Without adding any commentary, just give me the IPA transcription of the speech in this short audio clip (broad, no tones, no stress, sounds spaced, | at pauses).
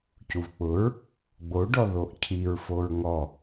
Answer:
c u v k͡p ʊ ɹ | ɡ͡b o ɖ ɔ ð o ʔ cʰ i ɹ f o ɹ ŋ ɔ